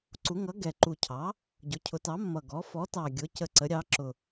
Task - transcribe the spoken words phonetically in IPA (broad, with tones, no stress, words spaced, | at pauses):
ǀu˩˥ ŋʌ˩˥ ɡɛ˨˩ ǃu˨˩cʰɑ˩˥ | ɟʊ˩˥cʰʊ˩˥tɑ˩˥mːʌ˨˩ ɡɔ˩˥ fɔ˩˥tɑ˨˩ɡʲʊ˩˥ cə˨˩ ǀə˩˥ɾʲɑ˩˥ǁʊ˨˩